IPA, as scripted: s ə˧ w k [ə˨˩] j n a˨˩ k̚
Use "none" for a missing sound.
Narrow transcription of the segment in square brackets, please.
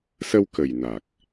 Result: ə˨˩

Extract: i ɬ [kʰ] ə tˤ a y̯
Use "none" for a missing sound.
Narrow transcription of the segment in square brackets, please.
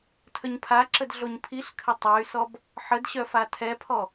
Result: kʰ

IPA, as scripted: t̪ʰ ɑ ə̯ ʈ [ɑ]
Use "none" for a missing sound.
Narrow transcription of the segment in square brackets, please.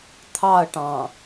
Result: ɑ̃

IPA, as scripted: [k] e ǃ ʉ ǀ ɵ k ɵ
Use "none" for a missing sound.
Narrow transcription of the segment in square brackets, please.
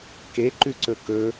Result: k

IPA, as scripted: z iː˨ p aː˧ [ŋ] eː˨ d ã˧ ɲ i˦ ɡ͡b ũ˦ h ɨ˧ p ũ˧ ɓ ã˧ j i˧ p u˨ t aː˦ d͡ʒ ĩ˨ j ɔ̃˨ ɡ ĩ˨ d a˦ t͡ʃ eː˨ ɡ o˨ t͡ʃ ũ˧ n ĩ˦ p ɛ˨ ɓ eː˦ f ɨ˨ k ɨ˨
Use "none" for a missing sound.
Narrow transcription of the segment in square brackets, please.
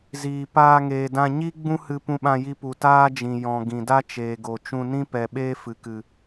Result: ŋ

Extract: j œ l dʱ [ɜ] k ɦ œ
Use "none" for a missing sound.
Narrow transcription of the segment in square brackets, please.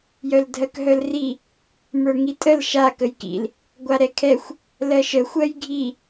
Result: ɜ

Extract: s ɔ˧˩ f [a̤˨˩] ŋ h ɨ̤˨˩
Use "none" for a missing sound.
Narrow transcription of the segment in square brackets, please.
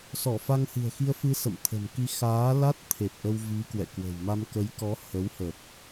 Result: a˧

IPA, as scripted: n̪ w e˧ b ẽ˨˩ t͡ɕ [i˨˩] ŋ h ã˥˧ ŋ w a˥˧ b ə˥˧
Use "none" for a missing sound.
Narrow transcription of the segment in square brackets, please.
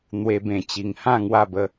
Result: i˨˩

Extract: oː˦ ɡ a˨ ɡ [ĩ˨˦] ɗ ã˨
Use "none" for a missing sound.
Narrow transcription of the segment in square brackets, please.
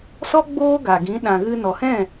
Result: ĩ˨˦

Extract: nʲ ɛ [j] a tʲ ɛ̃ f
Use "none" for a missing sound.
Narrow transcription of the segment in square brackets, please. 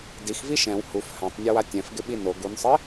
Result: w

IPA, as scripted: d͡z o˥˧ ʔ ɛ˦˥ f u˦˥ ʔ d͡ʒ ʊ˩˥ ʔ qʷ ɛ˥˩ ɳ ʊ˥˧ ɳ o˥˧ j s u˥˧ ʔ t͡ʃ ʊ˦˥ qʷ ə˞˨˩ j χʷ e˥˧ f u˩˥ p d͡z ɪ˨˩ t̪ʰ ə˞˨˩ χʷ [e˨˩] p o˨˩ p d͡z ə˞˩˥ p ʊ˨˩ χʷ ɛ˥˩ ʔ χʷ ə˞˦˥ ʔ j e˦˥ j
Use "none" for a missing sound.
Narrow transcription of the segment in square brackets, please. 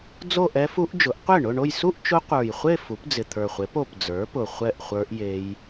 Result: e˩˥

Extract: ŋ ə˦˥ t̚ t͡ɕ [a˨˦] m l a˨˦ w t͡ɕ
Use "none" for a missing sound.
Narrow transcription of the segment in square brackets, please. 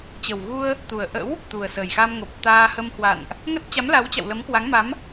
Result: a˨˦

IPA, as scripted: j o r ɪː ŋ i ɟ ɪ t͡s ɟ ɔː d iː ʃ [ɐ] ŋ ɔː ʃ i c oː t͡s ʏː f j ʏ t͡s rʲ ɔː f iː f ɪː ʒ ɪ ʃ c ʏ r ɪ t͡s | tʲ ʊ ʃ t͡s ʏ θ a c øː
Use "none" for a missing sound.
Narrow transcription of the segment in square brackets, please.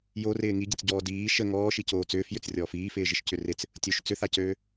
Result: ə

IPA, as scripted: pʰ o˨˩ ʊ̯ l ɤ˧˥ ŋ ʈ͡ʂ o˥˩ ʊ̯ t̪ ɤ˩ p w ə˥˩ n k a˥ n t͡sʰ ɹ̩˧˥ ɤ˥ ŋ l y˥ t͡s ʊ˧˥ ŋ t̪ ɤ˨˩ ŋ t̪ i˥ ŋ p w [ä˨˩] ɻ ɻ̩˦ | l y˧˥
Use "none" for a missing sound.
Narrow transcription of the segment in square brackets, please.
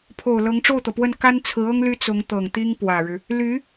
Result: ä˨˩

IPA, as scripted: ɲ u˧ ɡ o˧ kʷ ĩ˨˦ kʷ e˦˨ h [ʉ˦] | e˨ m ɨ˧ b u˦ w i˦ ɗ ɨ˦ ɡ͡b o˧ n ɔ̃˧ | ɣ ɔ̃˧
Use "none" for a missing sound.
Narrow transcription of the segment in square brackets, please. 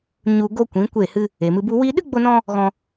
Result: ɨ˦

